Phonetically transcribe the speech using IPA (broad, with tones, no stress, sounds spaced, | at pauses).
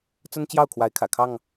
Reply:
t͡s ə˦ n t͡ɕ j ɑ˥˨ ʊ̯ kʰ w a˨˦ ɪ̯ kʰ ä̰˨˩ kʰ ɑ˥˨ ŋ